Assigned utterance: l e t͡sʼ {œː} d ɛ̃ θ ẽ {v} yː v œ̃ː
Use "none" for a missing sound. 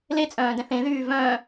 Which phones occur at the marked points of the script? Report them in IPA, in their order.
œ̃ː, ð

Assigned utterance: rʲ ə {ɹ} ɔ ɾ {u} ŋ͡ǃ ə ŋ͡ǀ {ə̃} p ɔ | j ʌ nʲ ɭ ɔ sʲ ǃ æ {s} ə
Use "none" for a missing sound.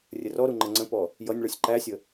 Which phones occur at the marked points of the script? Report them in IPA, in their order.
r, u, ə̃, sʲ

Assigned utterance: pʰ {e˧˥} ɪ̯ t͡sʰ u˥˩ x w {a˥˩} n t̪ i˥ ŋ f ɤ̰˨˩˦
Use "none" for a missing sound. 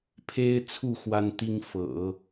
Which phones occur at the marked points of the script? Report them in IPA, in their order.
e˥, a˥

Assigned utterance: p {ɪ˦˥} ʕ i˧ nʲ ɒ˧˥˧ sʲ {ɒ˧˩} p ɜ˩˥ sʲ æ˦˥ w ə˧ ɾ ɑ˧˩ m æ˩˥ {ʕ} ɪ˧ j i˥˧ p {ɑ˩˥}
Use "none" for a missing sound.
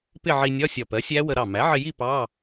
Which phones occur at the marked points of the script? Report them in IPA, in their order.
ɪ˥˧, ɒ˧˩, ʕ, ɑ˧˥˧

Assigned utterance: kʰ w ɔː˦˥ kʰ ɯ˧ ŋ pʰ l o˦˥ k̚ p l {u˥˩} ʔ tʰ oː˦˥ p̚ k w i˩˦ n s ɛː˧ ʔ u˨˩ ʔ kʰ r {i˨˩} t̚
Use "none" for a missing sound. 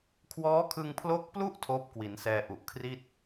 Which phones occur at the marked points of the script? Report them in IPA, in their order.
u˥˩, i˥˩

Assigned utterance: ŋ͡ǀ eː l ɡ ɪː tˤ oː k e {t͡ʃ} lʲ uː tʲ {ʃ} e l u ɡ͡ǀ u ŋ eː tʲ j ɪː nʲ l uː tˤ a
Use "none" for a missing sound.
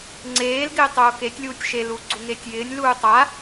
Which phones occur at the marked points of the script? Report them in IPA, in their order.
tʲ, ʃ

